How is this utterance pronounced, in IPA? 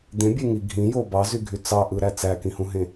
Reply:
d̪ ẽ bʲ e ŋ i ɡʱ ĩ j o b ɑ z y ɡʱ y t͡s ɑ ʔ ɯ ɾ æ t͡s æ k ĩ h ũ ɦ ẽ

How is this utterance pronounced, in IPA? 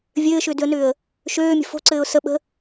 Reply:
vʲ ɘː ʃ ʏː d ʏ ə̯ n ʏː ə̯ | ʃ øː mʲ ə̤ f o̤ ǀ ɘː ʊ̯ s ə ɓ ə̤

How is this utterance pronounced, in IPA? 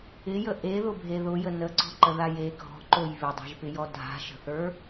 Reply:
ɪ j ə ʔ e ð ʊ bʱ e ð ʊ j ə n ə ǀ ɔ̤ ǃ ə ð a j e ɡʱ ɔ̤ ǃ o j β ɪ dˤ a̤ ʒ p ɪ j ɔ dʱ a̤ ʃ ə̤ θ ə˞

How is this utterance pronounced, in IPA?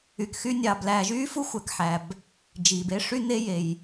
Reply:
y˩ k x y˦ nʲ ɑː˨ b l æː˨ ʒ yː˥ f u˥ xʷ æ˩ k ħ æ˩ b | d͡ʒ iː˩ b e˥ ʂ y˥ n e˥ j e˩ j

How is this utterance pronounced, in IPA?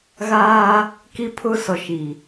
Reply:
ɣ aː˦ | k i˦ pʰ ʊ˦ s ɔ˨ ʃ i˨

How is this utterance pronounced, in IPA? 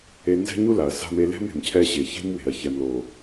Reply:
e˦ n z ɛ̤˦ ɲ u˦ l a˨ ɐ̯ s a̤˦ m e˦ l ɛ̤˦ m e̤˨ m cʰ ɛ˦ ɕ e˨ ç e̤˦ m w e̤˨ ɐ̯ ç ɛ˨ m l o˨

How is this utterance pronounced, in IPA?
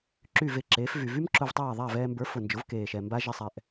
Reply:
ǁ y˥˩ v e˥˩ ǁ eː˩˥ f v y˩ v y˥ m ǁ ʊ˧ v tˤ aː˥˩ ðˤ a˥˩ v ɛː˧ m b ə˞˩˥ f ʊ˩ n d͡ʒ ʊ˩˥ v k eː˩ ʃ ɛ˩ m b a˥ ʒ ɪ˥ sˤ ɛ˧ ʔ

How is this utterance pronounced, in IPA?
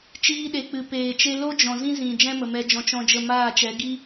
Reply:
t͡ʃ iː˧ ɗ e˨ k͡p ɨ˨ p eː˨ t͡ʃ e˦ l o˦ d͡ʒ ɔ̃˨ z ĩ˦ z ĩ˨ d͡ʒ ɛ̃˦ m ə˨ m ɛ˧ d͡ʒ ɔ̃˧ t͡ʃ ɔ̃˧ d͡ʒ ə˦˨ m aː˦˨ t͡ʃ ɛ˨˦ ɡ i˦

